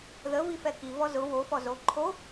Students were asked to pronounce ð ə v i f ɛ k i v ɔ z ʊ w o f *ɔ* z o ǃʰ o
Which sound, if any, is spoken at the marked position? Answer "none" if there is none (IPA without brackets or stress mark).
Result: ɔ